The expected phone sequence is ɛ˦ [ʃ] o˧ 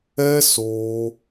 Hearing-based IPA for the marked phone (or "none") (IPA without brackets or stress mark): s